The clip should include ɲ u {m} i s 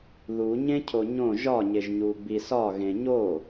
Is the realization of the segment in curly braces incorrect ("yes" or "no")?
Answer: yes